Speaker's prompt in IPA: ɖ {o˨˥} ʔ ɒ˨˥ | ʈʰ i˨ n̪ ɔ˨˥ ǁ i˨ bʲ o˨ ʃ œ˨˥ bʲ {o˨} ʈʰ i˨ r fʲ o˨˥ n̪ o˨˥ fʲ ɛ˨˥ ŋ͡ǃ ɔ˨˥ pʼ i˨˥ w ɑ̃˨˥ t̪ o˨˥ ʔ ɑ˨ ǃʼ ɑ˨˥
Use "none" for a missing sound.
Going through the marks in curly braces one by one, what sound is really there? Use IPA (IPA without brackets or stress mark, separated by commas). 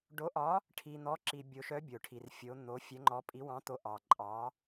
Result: o˨˥, o˨